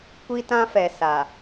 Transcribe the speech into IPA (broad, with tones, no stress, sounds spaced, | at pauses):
kʷ i˦ t ã˦ f ɛ˨ s a˨